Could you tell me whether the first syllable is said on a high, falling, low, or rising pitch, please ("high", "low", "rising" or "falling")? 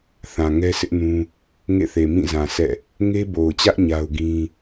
low